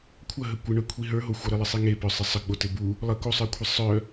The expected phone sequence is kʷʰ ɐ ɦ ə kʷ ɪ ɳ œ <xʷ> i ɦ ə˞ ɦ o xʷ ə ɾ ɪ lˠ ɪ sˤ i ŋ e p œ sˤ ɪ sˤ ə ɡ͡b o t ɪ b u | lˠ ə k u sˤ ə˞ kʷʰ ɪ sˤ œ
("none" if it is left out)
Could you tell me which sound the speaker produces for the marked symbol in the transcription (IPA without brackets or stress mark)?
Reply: kʷʰ